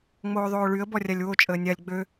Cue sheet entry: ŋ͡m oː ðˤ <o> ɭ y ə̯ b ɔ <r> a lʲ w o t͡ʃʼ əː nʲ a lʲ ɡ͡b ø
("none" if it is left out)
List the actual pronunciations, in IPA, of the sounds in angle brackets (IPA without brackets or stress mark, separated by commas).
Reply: oː, rʲ